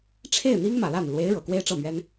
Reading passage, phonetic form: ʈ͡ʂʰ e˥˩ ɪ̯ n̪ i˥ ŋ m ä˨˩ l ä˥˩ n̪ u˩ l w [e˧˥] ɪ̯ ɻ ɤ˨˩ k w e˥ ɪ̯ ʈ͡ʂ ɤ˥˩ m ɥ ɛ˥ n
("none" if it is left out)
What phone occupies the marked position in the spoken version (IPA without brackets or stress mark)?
e˧˥